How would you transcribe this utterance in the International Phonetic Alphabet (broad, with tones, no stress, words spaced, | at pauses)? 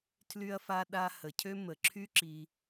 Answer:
tʰly˦ɐ̯fa˦ɗa˦ hə˨cʰø˦ mə˨ǁʰy˦ǁi˧